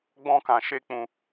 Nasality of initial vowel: nasal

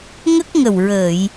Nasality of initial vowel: oral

